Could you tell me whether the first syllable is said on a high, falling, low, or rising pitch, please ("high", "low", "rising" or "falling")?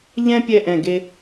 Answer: high